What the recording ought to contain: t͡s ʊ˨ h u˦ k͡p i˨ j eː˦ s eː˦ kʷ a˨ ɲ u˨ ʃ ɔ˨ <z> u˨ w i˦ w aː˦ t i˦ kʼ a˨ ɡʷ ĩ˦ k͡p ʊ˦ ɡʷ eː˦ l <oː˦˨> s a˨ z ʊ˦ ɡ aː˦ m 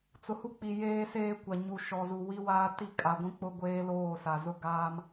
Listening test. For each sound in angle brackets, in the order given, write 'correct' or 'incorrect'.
correct, correct

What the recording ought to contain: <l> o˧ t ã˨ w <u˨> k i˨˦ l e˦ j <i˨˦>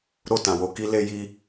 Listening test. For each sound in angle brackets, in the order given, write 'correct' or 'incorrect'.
incorrect: ɾ, incorrect: o˨, incorrect: i˦

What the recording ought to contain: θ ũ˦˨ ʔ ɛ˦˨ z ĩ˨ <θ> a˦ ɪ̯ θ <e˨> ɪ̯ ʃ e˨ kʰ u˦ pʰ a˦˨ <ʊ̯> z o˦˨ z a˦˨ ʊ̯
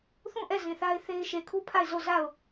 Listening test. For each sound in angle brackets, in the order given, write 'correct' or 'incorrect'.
correct, incorrect: e˦, incorrect: ɪ̯

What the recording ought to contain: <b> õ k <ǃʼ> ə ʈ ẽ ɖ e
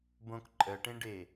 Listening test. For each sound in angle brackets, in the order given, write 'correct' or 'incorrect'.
correct, correct

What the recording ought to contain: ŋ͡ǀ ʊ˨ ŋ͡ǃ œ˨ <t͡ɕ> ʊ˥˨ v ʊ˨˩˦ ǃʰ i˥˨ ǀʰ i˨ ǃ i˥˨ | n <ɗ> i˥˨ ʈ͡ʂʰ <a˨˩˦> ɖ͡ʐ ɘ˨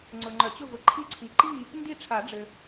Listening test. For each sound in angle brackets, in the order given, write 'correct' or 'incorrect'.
correct, incorrect: d, correct

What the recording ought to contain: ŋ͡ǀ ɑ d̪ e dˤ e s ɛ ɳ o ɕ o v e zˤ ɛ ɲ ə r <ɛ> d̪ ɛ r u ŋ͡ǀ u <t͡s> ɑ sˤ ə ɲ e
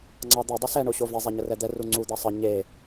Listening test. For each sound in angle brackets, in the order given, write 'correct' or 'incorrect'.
correct, incorrect: d̪

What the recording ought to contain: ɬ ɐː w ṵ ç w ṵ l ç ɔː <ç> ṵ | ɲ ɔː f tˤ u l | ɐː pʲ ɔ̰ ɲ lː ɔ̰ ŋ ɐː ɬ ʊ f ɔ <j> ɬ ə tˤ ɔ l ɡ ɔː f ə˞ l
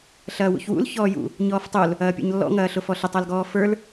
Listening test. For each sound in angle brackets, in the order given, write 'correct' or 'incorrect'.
incorrect: j, incorrect: none

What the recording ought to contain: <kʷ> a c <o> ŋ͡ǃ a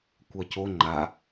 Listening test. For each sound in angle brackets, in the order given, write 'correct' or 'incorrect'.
correct, correct

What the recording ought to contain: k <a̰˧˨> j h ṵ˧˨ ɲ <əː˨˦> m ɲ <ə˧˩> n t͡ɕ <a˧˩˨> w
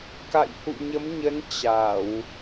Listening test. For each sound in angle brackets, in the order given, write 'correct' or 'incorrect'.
correct, incorrect: ə˨˦, incorrect: ə˨˦, correct

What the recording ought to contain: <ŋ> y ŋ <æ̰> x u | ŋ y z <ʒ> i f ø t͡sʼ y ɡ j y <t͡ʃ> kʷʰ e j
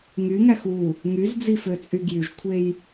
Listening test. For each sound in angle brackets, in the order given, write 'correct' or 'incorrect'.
correct, incorrect: æ, incorrect: d͡z, incorrect: ʒ

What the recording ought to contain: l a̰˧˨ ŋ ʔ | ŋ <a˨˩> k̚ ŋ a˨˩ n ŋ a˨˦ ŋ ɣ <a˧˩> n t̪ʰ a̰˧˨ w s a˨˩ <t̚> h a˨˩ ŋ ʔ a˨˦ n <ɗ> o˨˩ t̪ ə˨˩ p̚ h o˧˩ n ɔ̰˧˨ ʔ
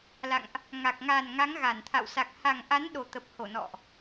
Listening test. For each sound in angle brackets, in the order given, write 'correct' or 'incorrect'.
correct, correct, incorrect: k̚, correct

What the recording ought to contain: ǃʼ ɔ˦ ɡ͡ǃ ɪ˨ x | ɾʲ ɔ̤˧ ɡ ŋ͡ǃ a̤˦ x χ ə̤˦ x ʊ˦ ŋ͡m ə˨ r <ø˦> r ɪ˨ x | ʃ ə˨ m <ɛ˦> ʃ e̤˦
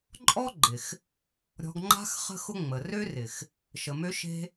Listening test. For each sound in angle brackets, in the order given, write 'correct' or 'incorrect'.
correct, incorrect: ø˦

